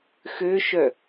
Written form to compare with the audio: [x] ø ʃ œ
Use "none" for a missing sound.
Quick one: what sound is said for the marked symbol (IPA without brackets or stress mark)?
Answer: x